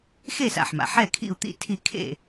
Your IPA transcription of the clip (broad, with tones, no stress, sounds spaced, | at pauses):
x e˥˩ s a̰˩ ħ m a̰˩ ħ ɛ˥˩ kʰ ḭ˥˩ u̯ t̪ ḭ˥˩ tʰ i˥˩ kʰ ḛ˥˩